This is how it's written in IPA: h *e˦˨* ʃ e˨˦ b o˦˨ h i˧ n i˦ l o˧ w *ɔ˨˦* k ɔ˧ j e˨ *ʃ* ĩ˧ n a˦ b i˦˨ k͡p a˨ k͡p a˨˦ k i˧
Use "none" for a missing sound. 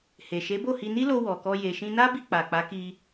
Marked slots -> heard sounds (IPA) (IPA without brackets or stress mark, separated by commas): e˨, ɔ˨, ʃ